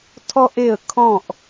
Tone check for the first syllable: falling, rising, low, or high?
high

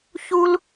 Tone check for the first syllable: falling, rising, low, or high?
high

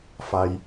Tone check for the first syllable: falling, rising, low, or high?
low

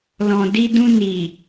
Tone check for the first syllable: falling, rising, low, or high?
low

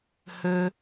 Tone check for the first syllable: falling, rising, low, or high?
high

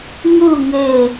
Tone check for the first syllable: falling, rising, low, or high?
falling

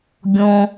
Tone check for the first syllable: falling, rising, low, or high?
low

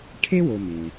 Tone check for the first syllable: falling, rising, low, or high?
high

